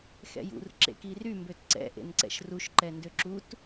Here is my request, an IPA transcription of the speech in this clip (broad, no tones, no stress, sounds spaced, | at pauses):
x ɛ̰ j ṵ r ǁ ḛ k i r y m b ø t ǀ ɛ̰ ʔ ḛ n ǀ ɛ̰ ʃ r u ʃ ǃ ɛ n d ø ǁ u t